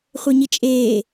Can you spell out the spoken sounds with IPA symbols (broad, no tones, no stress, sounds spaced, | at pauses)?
χʷ e ɲ i t͡ʃʼ eː